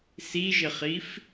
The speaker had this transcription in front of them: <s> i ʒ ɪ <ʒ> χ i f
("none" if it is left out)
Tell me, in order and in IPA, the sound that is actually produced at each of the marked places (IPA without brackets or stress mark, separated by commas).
s, none